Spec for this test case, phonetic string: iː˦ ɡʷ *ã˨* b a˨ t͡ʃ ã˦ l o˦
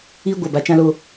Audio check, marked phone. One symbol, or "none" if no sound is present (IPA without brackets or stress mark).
a˨